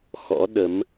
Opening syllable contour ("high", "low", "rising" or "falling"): rising